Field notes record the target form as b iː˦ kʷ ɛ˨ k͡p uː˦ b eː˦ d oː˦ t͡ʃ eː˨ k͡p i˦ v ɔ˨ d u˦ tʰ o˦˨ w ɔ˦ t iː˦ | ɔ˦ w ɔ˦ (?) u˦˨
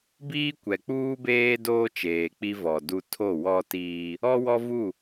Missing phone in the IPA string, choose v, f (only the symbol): v